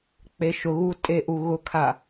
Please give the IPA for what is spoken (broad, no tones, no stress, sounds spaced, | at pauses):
k͡p e ʃ ʊ ɣ u tʼ e ʔ u ɣ ʊ kʰ a